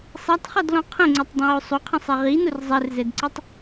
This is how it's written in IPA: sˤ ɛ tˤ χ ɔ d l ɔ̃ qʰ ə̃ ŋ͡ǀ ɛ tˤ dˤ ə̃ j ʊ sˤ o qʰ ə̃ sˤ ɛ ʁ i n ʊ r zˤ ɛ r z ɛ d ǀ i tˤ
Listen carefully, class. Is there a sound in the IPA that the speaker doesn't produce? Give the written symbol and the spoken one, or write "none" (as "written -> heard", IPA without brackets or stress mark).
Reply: none